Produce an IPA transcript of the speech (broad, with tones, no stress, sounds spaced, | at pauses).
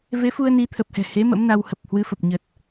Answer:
v e˨˦ f u˧ ə̯ n i˨˦ t̪ʰ ə˨˩ p̚ h ɛ̤˨˩ h e˨˦ m ə̰˧˥ m n a˧ w h ə˨˩ p̚ h w ɨ˨˦ f ə˨˩ p̚ ɲ ə˨˩ t̚